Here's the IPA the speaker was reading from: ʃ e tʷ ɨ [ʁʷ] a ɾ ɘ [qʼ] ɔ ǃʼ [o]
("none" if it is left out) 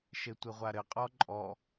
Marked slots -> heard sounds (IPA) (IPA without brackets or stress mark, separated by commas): ʁʷ, qʼ, ɔ